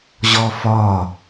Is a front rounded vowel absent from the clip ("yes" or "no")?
yes